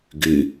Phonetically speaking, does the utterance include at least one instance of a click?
no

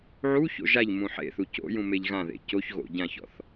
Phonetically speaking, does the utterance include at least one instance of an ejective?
no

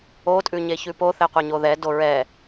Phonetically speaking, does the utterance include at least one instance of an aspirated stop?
no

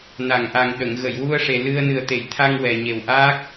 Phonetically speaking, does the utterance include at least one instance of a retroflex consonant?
yes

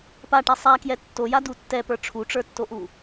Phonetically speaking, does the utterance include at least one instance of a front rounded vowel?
no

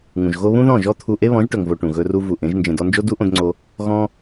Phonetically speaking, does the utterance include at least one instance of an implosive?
no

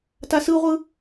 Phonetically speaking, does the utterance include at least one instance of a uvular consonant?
yes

